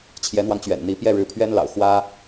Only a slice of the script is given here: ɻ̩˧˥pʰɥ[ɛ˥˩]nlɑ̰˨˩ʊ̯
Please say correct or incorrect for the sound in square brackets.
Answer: incorrect